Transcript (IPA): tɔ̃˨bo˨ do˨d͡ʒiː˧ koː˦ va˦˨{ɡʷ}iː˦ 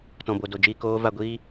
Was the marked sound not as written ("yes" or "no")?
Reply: no